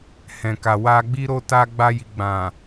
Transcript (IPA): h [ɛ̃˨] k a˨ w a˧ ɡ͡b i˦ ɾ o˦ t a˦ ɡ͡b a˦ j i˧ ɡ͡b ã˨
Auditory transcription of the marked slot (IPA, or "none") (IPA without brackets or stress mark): ɛ̃˨